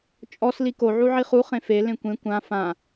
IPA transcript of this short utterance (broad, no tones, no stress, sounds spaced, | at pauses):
t͡ʃʼ ɔ s l i k o ʕ u ʕ i χ u χ ẽ f e l ẽ kʷ ẽ kʷ ã f ã